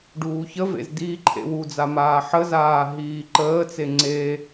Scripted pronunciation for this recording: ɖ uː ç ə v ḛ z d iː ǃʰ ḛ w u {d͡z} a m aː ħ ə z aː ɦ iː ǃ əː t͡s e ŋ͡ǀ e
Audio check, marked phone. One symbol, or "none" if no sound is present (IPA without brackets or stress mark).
d͡z